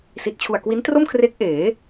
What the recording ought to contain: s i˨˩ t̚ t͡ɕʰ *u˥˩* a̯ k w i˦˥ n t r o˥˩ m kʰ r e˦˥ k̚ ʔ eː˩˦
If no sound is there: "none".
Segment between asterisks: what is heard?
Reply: u˨˩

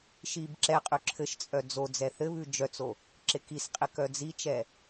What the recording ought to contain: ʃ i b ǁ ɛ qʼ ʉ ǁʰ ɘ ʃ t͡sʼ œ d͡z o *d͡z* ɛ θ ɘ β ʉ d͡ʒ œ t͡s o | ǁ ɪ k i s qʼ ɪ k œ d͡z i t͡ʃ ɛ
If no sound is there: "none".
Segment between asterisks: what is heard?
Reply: d͡z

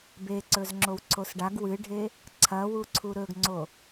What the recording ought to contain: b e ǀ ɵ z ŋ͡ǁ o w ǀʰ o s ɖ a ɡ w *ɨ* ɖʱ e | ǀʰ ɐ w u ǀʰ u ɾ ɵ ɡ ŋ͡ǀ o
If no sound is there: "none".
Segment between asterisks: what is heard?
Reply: ɨ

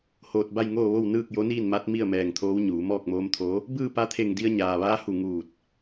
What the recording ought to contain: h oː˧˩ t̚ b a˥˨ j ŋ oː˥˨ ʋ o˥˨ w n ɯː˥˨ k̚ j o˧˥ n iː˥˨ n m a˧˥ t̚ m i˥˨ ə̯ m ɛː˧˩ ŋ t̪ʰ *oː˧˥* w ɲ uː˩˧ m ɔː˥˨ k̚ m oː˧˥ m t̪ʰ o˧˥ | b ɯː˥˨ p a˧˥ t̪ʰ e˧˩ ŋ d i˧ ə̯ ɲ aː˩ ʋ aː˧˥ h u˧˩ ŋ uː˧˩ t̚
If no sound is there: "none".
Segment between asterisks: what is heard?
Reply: oː˧˥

